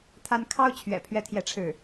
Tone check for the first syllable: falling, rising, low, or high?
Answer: high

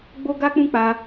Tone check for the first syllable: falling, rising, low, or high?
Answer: high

